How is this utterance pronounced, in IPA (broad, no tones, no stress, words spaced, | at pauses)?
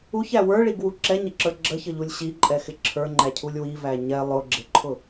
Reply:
uçæ wə˞ɭiɡwu ǁɛɲəǁə˞ ɡ͡ǁəçəʎulʲ ɕiǃʼɛxɪ ǁʰə˞ŋ͡ǃæcʰulʲ wivæ ɲɛ lˠʊɡ͡ǁɪǃʰʊ